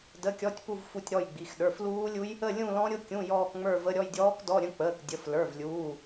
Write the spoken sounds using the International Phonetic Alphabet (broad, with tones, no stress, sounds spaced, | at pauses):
d ə˧˥˧ kʲ ɔ˧˥˧ tʲ p u˥˧ v f u˥˧ tʲ ɾ ɔ˥˧ j ɡ͡b i˩˧˩ x ɗ ə˞˩˧˩ f l uː˦˥ lʲ u˦˥ j | ə˥˧ lʲ ũ˥˧ l ɔ̃˦˥ ɾʲ ʊ˦˥ kʲ ũ˧˥˧ j ɔː˥˧ k ŋ͡m ə˞˥˧ v ə˧˥˧ ɾʲ ɔ˥˧ j dʲ ɔː˦˥ k d ɔ˧˥˧ ɾʲ ə̃˧˥˧ k͡p əː˩˧˩ k dʲ ə˩˧˩ f l ə˞˩˧˩ v lʲ uː˩˧˩